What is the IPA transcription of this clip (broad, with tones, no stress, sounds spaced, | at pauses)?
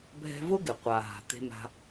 bʱ ɛ̤˦ v ʊ˦ ɡ ɪ˨ qʷ a˨ ɦ a̤˨ t̪ e̤˧ m a̤˧